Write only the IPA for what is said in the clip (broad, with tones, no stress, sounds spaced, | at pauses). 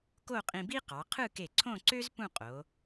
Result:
k o˥˧ qʼ ĩ˧ b i˥ q ɑ˩˧ qʰ ɯ˥˧ k e˧˩ ǀʰ õ˥˧ ǀ ø˥ z p ũ˥˧ qʼ o˩˧